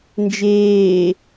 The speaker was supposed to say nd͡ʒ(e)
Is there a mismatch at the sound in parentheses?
yes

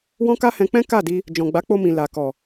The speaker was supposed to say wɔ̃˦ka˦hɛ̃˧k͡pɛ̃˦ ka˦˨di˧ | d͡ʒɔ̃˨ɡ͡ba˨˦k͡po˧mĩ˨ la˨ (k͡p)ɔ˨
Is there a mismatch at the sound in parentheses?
yes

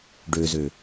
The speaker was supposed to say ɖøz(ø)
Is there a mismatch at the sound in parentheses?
no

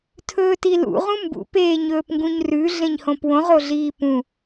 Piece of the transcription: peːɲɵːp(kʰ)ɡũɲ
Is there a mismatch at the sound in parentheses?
yes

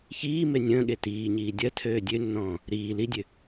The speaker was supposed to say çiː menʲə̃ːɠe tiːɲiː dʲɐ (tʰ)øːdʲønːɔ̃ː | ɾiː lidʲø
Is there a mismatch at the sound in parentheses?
no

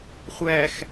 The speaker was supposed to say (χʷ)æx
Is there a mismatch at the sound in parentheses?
no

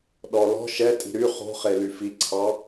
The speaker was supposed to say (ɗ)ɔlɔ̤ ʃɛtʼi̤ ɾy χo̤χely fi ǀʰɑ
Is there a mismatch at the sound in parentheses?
no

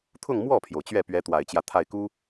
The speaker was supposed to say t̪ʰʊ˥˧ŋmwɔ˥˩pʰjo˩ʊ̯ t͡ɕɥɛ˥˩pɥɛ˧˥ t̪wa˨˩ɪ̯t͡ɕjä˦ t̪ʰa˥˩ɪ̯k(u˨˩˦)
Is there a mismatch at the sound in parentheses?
yes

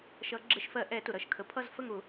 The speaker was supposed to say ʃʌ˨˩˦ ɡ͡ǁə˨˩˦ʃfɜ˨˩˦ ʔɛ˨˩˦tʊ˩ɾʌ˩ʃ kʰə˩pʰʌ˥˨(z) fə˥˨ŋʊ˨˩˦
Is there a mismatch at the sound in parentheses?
no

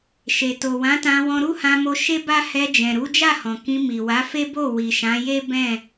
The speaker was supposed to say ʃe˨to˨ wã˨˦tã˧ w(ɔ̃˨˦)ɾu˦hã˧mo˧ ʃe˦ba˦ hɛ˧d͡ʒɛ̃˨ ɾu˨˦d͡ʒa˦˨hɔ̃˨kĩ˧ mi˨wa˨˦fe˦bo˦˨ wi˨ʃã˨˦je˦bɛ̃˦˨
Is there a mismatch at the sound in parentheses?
yes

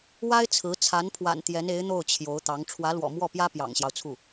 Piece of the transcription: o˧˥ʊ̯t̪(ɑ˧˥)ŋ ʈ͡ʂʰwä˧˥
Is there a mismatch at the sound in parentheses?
no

